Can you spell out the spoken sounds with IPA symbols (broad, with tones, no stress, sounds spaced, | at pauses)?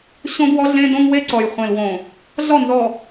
ɕ õ˦ d w ɔ˦ ɮ ẽ˦ d õ˦ ŋ w e˦ ǀ ɔ˨ j χʷ ẽ˨ l w õ˨ | ɮ ɔ˦˨ n z ɔ˨